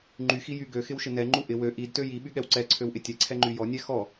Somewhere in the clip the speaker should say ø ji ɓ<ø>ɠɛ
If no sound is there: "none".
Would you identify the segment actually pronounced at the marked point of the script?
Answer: y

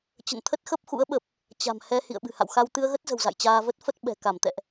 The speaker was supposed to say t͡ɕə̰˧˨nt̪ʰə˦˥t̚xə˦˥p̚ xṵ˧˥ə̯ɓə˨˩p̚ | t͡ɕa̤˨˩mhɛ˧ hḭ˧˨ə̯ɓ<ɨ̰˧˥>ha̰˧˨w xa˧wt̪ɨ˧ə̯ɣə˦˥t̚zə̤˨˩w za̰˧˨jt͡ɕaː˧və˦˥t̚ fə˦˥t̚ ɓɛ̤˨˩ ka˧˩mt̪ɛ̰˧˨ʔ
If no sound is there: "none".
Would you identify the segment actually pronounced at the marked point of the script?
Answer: ɨ̤˨˩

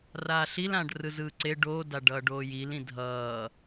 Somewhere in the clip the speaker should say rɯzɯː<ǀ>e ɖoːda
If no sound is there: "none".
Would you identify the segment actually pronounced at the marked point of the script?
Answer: ǀ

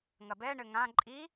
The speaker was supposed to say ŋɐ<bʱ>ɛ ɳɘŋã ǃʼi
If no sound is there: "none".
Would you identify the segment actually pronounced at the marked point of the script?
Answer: b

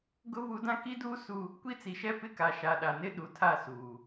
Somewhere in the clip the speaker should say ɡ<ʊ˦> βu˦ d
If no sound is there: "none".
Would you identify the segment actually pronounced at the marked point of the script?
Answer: ʊ˦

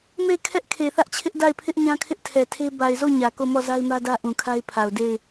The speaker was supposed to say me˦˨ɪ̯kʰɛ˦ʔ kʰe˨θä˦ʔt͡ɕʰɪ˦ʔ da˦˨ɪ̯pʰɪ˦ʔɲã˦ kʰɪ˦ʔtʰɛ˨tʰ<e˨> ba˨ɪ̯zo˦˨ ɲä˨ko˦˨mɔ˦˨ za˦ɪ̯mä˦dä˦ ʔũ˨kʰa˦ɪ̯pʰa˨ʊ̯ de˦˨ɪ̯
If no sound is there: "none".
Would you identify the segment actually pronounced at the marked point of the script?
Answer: e˦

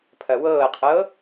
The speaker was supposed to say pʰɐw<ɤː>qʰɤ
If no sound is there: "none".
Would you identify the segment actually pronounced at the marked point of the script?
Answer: ɤː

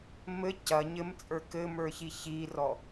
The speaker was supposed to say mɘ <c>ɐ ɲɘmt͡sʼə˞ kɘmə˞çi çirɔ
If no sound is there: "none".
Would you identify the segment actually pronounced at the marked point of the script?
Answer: c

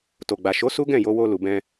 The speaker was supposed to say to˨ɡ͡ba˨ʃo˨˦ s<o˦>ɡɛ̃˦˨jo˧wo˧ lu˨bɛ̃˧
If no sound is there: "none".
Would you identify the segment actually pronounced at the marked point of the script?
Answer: u˦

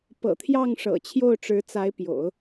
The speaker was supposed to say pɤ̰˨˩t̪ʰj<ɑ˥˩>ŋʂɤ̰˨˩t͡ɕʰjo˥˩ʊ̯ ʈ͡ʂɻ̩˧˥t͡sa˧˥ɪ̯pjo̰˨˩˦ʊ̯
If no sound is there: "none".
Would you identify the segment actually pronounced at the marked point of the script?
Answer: ɑ˥˩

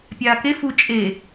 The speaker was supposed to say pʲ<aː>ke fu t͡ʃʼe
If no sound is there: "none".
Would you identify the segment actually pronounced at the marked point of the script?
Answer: aː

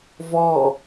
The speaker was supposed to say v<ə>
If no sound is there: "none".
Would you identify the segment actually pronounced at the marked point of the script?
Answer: ɔ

